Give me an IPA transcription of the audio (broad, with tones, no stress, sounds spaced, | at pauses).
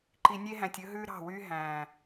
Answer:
ǃ i˨ nʲ e˦ ɦ æ̃˨ tʲ ɵ˦ ɦ ʉː˦ ɾ ɑ̤˦˨ w yː˦ ɦ æ̃˨